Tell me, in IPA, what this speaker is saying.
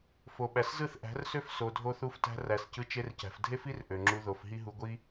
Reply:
f o˨ ɓ æ˨ s z ɯ˦˨ θ ʔ æ̤˨˦ r s ø˦ f s o˨ dʱ o˧ θ u˧ f t æ̤˧ r æ˨ s c ɯ˧ t͡ʃ e˧ r c æ̤˨ f dʱ e˧ f i˧ r ʔ ø˨ ŋ͡ǁ u˧ ð o˨ f ɦ i˦ ɦ u˧ ɡʷ i˦

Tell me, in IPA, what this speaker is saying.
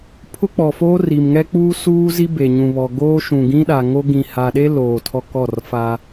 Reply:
pʰ ʊ˦ k͡p ɔ˨ f oː˦ r i˨ m ŋ ɛ˦ k͡p uː˦ s uː˦ z i˦ b e˨ ɲ ũ˨ β ɔ˨ ɡ oː˦ ʃ ũ˨ ɡ ĩ˦ ɗ a˨ ŋ o˦ ɡ ĩ˨ h a˨ ɗ e˦ l oː˨ tʰ ɔ˦ k ɔ˦˨ r f a˦

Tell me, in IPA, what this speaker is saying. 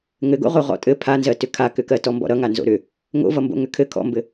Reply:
ŋ ɘ ɡ o̰ ʁ o ʁ ɔ̰ tʼ ɘ pʰ a n z ɜ t ʏ kʰ a k ʏ k ɜ t ɔ m b ɔ̰ ɾ ʌ ŋ a n z o̰ ɾ ʏ | ŋ o̰ v ʌ m b o̰ ŋ ʏ kʰ ɘ kʰ ɔ̰ m b ɘ

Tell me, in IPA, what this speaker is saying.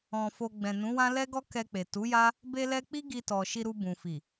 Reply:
ɔ̃˧ f o˧ ɡ͡b ɛ̃˨ n ũ˨˦ w ã˦ l ɛ˦ ɡ ɔ˦ k ɛ˧ k͡p e˨ t u˨˦ j a˦ | b e˧ l ɛ˧ k͡p i˦ ɡ i˧ t ɔ˨ ʃ i˧ ɾ u˧ b ũ˨ f i˨

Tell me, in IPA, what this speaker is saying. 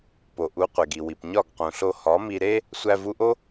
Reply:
p o˨ ʔ u˨˦ qʷ e˨ ɡ i˨ w i˨ p ɲ ɒ˦˨ ɡ q ũ˨ ɬ o˧ h ɒ˨˦ m i˧ ɾ e˦ | sʷ æ˧ v u˧ ʔ o˦

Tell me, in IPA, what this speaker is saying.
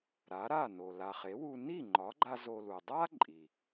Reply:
ɾ a˩˥ ɾ a˥˩ n o˩ l a˩ χ e˩˥ w u˧ n i˥˩ ŋ͡ǃ ɒ˩˥ ɡ͡ǃ a˧ z o˧ l u˩ dˤ a˥ ǃʼ i˩

